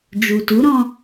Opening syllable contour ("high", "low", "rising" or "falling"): low